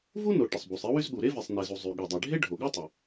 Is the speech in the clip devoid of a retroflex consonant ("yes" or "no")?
no